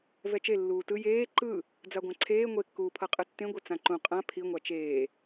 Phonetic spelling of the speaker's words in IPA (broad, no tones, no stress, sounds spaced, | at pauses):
v ɛ t͡ʃ e lː uː t ɯ j eː ǃ ɯ | d͡z a ɡʷ ã ǀʰ eː ŋʷ e kː uː pʰ ɤ qʼ ɯ tː ẽ ɡʷ ɛ t͡s ã ǃ ũ qʼ ã pʰ i ŋʷ a t͡ʃ eː